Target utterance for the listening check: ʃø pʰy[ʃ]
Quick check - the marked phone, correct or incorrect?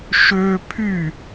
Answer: incorrect